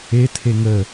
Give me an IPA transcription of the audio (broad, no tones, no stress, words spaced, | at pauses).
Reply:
etʰe ŋə